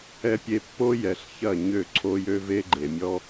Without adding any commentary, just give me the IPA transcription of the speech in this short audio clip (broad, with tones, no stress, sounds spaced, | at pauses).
ɛ˨ pʲ e˨ pː o˦ j ɛ˨ ɬ ç ɐ˦˨ ɲ ø˦˨ ǀʰ o˦ j ø˦ v e˦ ɡ͡ǃ e˨ mʲ ɔ˦